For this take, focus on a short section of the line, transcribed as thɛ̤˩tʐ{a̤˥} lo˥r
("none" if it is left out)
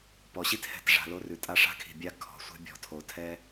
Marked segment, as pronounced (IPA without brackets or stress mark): a̤˩